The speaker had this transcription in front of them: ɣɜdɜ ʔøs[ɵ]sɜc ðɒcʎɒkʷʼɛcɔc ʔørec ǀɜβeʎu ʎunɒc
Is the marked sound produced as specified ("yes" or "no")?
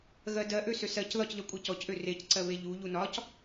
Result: no